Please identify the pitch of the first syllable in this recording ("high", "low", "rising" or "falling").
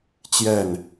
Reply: falling